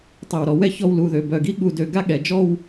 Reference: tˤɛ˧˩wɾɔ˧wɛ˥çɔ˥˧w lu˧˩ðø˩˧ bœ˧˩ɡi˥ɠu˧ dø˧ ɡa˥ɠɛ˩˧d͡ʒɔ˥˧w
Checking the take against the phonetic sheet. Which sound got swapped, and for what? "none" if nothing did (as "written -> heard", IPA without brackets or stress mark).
none